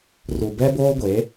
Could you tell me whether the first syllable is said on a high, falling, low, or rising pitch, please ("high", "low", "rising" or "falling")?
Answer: low